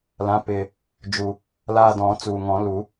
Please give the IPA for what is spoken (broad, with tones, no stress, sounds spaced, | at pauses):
l ã˩˥ p ɪː˨˩ | d͡ʒ u˨˩ | l aː˦˨ d ɔ̃ː˨˩˦ t͡s uː˨˩ ŋ ɔ̃˨˩˦ l u˨˩˦